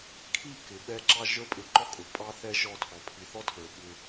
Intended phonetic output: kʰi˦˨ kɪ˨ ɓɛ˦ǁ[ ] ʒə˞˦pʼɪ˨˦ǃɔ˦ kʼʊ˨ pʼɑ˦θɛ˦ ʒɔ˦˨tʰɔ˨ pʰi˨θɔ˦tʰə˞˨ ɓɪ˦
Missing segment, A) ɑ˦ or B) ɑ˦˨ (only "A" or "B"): A